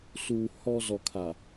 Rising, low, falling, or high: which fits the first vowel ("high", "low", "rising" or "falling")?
low